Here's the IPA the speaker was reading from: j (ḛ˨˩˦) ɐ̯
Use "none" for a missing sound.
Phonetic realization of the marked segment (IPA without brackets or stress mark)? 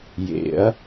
ḛ˨˩˦